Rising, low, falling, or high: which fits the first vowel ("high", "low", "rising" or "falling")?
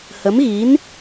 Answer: rising